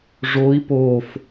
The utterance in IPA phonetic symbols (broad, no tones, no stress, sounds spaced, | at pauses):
ʐ o i̯ p o f